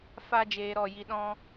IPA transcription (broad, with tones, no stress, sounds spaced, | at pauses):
f a˦ d͡ʒ eː˧ ɾ ɔ˦˨ j i˧ ɗ ɔ̃˦